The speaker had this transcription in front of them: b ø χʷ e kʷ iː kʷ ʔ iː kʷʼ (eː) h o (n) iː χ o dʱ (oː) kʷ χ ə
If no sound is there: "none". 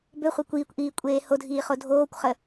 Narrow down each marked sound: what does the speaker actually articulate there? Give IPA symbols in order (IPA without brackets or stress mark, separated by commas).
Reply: eː, dʱ, oː